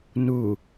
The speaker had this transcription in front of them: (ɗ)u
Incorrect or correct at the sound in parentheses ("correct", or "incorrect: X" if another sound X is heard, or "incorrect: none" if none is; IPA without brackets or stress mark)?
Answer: incorrect: n